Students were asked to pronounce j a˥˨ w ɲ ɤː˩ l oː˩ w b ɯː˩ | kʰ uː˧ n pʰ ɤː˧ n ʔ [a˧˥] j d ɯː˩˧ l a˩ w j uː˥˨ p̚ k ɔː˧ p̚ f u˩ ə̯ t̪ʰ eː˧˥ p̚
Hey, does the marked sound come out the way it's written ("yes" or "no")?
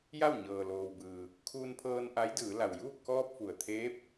yes